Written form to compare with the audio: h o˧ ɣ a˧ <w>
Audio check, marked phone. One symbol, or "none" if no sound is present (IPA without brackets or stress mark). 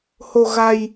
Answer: j